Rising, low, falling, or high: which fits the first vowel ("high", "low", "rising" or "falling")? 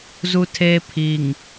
high